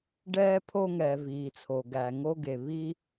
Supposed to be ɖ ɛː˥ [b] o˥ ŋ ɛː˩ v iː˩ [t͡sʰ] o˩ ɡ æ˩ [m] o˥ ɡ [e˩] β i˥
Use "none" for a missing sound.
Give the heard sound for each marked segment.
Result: pʰ, t͡sʰ, ŋ, e˩

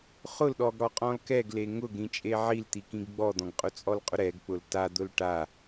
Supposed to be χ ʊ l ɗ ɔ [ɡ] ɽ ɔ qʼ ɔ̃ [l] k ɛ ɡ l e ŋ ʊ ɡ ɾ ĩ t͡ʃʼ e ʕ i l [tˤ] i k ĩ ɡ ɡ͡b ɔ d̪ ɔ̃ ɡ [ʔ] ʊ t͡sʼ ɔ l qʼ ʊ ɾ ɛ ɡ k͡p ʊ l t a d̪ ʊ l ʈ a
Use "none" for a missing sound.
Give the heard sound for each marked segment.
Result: ɡ, l, t̪, qʼ

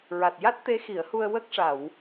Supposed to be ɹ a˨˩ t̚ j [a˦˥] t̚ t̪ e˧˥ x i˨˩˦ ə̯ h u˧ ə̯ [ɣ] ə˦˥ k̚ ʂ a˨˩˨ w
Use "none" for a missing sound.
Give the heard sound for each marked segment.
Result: a˦˥, w

